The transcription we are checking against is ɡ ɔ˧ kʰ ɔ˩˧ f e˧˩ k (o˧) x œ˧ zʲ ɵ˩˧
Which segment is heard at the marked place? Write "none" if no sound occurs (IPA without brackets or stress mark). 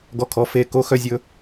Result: o˧